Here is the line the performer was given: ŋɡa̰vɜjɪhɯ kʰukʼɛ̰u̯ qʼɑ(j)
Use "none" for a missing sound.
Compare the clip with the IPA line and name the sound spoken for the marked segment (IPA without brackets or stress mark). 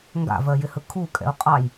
j